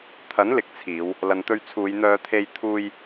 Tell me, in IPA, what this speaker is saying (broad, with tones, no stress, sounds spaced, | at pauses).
t̪ʰ ɐ˨˥ n l ɪ˨˥ k̚ t͡sʰ iː˨˧ w | l ɐ˨ n t̪ ɵ˧ ɥ t͡sʰ uː˨˧ j n̪ œː˨˧ t̪ʰ e˧ j t̪ʰ uː˧ j